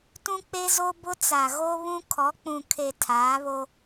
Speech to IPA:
t ũ˦ k͡p e˦ z o˦ b ʊ˦ t͡s a˨ ɣ o˦ β ũ˦ kʰ ɔ˨˦ k͡p ũ˨ kʰ e˨ tʰ aː˨˦ β o˦

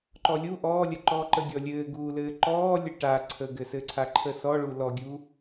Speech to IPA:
ǃ ɔ lʲ u ʔ ɔː lʲ ə ǃ ɔː ǃ ə ɡʲ ɔ lʲ ɘː ɡ uː l ɘː ǃ ɔː lʲ ə ʈ a ǀʰ ə ɡ ɘ s ɘ ǀʰ a ǃʰ ə s ɔ ɭ u l ɔ ɡʲ u

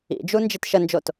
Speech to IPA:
ḭ d͡ʒ u n d͡ʒ i t ʃ ə n d͡ʒ o t

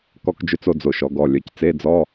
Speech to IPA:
k ɔ˧ k d͡ʒ ø˧ t͡s o˧ d͡z o˩ ʃ ɔ˩˧ ɡ ɔ˩˧˩ lʲ œ˩˧ c t͡s e˧˥˧ d͡z ɔ˧˥˧

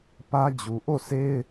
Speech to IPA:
p ä˦ d͡ʑ u˨ ʔ o˦˨ s e˦ ɪ̯

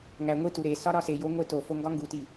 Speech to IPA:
ŋ æ ŋʷ i t u ɾ e s ɒ ɾ ɒ s e j o ŋʷ e t o f o ŋ ɡ ɒ ŋ ɡ u t i

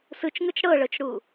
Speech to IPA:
s ɯ t͡ʃ ŋ ɯ t͡ʃ ɽ ɤ ɭ ɤ t͡ʃ ɽ u

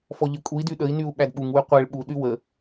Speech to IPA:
f ɔ ʎ ə kʼ u i̯ d y ɗ ə i̯ n y u̯ ɓ æ d ɓ u ŋ w y qʷ e ɭ ɓ u ɗ y w ə

